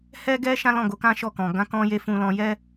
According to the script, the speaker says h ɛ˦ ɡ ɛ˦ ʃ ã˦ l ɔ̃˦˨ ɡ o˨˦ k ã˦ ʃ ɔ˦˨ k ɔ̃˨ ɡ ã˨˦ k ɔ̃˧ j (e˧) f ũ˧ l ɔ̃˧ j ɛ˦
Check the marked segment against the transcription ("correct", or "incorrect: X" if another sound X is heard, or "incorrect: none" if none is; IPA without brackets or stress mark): correct